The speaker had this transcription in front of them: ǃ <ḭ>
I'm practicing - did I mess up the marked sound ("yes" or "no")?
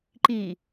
yes